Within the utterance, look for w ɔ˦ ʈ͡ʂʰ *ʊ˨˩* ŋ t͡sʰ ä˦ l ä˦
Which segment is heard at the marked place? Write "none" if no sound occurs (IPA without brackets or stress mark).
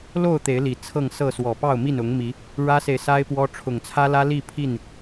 ʊ˨˩